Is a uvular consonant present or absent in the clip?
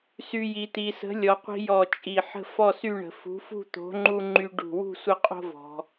present